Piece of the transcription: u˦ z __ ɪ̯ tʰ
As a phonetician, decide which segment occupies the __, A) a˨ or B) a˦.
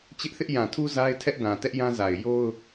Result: B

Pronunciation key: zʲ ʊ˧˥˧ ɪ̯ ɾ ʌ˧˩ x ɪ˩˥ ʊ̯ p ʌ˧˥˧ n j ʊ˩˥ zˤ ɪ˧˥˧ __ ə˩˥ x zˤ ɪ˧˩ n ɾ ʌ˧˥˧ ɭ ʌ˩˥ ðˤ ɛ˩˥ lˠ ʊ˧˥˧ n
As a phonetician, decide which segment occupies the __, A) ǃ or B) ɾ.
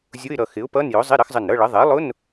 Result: B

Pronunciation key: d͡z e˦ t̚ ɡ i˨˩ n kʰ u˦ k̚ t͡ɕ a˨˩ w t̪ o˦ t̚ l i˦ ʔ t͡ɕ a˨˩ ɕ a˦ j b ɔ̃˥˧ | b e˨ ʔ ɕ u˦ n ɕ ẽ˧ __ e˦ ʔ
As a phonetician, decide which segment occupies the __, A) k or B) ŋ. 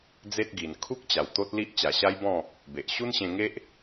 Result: B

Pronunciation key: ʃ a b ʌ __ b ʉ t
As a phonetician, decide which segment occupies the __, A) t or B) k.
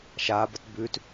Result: A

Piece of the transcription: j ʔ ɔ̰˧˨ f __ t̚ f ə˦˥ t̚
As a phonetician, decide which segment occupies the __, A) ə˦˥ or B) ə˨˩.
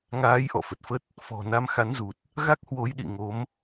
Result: B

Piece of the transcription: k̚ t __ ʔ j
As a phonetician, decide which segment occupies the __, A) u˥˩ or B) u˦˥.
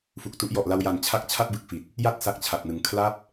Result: B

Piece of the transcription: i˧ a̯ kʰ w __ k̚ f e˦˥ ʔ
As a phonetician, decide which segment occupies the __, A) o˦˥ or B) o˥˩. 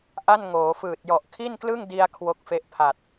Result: A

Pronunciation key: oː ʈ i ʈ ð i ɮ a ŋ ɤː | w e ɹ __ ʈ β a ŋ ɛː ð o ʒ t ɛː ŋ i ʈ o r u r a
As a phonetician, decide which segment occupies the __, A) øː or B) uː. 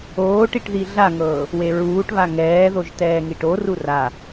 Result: B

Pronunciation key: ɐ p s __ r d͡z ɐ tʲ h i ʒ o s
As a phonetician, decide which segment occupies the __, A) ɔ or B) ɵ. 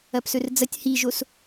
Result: B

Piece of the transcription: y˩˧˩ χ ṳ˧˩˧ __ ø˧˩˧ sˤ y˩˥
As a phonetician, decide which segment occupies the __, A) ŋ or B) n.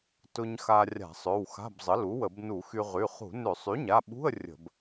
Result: B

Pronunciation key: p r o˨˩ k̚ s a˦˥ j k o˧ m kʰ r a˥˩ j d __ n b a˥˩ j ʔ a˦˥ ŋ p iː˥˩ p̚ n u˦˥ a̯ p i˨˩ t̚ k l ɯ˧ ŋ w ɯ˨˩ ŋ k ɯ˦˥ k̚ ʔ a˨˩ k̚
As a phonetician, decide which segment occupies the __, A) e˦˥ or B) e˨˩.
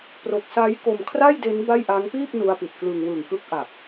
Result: A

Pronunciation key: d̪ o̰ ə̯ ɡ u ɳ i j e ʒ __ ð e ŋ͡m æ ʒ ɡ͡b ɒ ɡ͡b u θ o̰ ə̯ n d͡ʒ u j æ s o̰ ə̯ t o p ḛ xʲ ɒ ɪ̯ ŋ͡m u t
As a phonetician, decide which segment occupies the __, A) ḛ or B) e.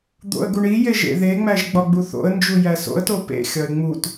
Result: A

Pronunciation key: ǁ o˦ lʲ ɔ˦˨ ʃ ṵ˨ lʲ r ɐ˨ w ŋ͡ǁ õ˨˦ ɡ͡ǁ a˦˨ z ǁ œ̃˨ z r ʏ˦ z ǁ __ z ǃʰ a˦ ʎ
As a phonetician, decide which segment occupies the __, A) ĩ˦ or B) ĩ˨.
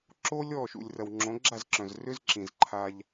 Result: B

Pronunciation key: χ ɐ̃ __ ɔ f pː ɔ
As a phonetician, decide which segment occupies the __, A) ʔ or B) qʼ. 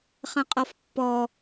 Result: B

